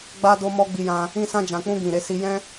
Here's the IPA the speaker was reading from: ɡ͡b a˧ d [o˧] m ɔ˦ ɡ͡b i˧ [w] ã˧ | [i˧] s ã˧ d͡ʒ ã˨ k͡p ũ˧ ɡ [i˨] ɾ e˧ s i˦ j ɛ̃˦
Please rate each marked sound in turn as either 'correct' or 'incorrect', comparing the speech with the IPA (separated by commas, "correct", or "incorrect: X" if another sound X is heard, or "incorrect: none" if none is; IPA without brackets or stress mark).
correct, incorrect: j, incorrect: ĩ˧, incorrect: ĩ˨